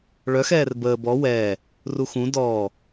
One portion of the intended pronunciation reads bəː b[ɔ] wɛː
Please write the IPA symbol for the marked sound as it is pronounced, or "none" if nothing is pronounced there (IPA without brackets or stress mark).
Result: ɔ